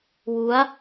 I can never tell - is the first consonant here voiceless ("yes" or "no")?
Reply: no